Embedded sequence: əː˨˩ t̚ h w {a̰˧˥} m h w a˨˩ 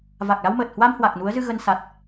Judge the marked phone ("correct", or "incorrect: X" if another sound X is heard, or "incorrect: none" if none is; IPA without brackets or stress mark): incorrect: a˧